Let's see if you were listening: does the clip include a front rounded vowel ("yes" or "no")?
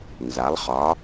no